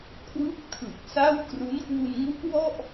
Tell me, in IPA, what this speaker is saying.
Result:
kʰ w ɯ˥˩ k̚ tʰ ɯ˨˩ k̚ s a˥˩ w k r u˦˥ n k w u˧ n ŋ u˦˥ ʔ w ɔ˥˩ ʔ

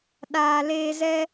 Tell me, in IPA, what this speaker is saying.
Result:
ɗ aː˨ l eː˧ z ɛ˦

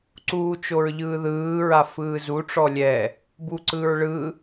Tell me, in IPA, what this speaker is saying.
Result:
ǀ uː t͡ʃ o ɹ ʎ ɯː ð ɯː ɹ a f ɯː z u ʈ͡ʂ ɔ lʲ ɛ | b u ǀ ɯ ɹ ɭ ɯ

